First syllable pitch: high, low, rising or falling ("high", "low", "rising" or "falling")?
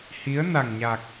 rising